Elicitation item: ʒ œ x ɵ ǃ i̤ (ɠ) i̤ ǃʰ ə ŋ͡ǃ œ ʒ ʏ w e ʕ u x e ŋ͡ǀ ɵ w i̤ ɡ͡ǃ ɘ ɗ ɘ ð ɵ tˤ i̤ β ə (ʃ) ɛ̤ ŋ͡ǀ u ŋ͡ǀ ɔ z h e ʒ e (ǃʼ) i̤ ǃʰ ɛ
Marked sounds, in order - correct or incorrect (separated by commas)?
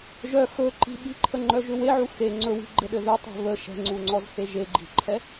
incorrect, correct, incorrect